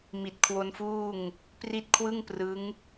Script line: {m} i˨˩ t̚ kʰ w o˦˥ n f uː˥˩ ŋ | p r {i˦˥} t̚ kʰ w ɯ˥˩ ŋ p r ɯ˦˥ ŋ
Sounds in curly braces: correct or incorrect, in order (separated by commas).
correct, correct